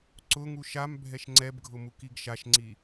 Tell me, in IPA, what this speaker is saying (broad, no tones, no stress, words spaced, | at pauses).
ǀʊŋu ʃam bʱɛʃŋ͡ǀɛbɡʱʊ mukiɡʃaʃŋ͡ǀi